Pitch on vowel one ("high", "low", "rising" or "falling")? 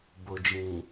low